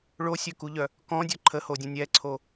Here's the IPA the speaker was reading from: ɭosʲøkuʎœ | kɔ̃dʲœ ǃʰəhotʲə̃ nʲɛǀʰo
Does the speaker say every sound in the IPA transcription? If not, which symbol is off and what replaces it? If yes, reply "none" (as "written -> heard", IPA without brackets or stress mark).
tʲ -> dʲ